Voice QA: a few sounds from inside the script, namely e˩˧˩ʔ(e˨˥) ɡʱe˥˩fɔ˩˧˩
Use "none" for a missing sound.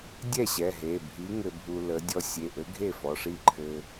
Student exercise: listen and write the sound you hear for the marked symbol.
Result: ɘ˨˥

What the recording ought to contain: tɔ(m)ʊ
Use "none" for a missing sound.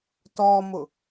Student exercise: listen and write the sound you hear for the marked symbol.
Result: m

